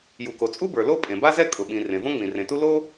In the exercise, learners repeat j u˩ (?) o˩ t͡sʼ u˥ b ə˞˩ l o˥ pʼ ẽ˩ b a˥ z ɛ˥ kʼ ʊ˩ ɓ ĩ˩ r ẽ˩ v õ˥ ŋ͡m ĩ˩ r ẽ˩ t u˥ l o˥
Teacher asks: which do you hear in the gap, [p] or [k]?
k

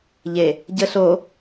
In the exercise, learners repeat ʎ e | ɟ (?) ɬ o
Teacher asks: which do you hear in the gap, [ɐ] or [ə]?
ə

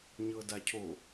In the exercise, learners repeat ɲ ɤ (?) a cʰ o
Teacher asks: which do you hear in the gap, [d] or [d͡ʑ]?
d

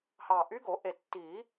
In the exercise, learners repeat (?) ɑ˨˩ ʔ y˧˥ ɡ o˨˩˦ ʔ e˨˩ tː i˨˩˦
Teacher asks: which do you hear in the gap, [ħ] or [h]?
h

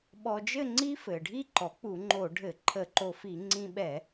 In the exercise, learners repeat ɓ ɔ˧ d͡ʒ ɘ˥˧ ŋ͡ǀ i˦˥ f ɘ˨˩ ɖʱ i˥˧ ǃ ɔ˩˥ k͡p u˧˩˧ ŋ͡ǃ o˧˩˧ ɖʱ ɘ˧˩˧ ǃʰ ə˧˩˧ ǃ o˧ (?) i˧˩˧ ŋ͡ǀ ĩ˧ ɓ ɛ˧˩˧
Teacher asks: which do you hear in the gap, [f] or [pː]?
f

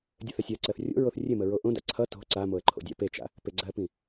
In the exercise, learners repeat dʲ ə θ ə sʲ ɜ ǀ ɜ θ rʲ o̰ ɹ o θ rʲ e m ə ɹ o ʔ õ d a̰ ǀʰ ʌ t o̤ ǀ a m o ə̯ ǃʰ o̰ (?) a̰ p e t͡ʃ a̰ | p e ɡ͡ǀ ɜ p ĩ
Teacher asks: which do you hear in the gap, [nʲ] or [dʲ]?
dʲ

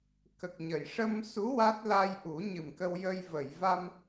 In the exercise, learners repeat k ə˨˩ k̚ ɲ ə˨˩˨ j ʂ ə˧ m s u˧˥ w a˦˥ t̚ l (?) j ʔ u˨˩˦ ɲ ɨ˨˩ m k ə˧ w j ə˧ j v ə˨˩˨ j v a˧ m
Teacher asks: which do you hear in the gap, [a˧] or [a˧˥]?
a˧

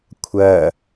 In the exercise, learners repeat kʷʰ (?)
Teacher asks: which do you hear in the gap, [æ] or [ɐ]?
ɐ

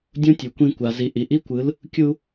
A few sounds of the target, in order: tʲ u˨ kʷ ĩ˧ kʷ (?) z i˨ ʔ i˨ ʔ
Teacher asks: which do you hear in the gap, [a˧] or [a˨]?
a˨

